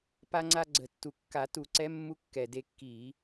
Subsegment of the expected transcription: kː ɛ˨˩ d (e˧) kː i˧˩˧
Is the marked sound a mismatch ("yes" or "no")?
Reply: no